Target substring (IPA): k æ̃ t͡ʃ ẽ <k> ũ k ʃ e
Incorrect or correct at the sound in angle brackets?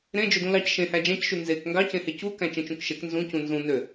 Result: incorrect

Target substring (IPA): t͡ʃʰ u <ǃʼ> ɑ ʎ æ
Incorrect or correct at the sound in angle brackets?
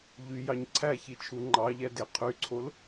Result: incorrect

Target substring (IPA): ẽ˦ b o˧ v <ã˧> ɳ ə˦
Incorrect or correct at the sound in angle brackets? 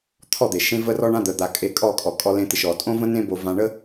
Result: correct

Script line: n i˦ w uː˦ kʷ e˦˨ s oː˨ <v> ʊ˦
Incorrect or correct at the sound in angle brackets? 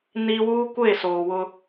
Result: incorrect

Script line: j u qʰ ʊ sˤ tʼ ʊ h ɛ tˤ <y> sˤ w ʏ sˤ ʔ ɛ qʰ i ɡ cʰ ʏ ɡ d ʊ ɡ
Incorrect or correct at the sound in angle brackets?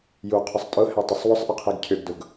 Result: incorrect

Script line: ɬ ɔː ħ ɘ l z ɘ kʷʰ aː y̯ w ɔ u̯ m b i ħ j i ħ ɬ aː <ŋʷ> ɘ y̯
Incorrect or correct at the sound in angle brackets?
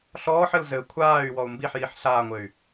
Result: correct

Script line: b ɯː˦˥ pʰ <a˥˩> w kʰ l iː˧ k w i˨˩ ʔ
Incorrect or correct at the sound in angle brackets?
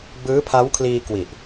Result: incorrect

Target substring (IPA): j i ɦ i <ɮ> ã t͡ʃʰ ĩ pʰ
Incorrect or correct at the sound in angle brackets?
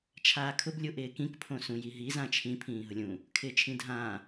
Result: incorrect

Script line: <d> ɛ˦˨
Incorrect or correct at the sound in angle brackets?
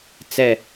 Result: incorrect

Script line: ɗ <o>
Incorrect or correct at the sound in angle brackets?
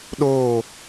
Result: incorrect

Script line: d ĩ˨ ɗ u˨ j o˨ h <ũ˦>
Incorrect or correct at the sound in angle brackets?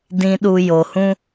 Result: correct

